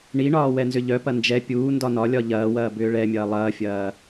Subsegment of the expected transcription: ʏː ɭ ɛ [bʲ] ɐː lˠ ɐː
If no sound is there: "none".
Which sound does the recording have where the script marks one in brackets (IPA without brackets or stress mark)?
mʲ